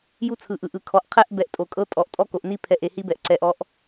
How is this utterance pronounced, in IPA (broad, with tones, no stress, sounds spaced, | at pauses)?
j u˦ t͡sʰ ɯ˨ ʔ ɯ˨ ʔ ɯ˨ kʰ ɔ˨ ʔ qʰ ɛ˦ ʔ b ɛ˨ ʔ tʼ o˨ kʼ ɤ˦ tʼ ɔ˨ ʔ tʼ ɔ˦ k o˨ ʔ n i˦ pʰ ɛ˨ ʔ e˨ h i˦ b ɛ˨ ʔ ǀ ɛ˨ ʔ ɔ˦ ʔ